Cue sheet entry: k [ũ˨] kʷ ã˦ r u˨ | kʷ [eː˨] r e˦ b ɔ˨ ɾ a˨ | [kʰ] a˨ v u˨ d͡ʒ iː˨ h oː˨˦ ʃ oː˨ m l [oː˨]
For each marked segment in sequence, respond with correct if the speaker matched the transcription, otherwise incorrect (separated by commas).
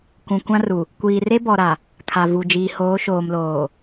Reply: correct, incorrect, correct, correct